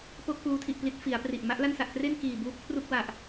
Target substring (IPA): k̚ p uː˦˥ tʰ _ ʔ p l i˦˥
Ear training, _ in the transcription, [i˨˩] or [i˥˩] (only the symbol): i˨˩